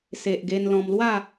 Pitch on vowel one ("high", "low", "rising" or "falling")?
low